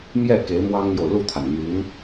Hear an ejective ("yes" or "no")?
no